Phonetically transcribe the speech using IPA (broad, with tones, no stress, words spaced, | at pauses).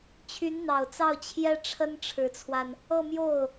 t͡ɕʰy˧˥nn̪ɑ˨˩ʊ̯t͡sɑ˥˩ʊ̯ t͡ɕʰjɛ˥ʈ͡ʂʰə˥n ʈ͡ʂʰɻ̩˧˥t͡sʰwa˧n | ɤ˥˧mjo˥˩ʊ̯